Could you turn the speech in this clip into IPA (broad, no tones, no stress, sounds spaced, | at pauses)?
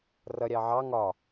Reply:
r ʌ ɾʲ ɑ ʕ ɑ ŋ ɒ